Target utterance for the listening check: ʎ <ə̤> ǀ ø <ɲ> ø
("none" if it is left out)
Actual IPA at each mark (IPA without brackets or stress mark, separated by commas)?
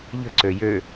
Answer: ə̤, j